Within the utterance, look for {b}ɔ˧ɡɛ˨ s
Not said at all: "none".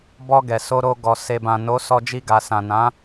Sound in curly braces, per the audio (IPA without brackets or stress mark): b